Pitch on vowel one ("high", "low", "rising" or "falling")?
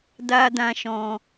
high